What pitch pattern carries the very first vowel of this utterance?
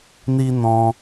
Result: high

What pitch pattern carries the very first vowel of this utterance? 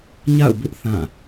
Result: falling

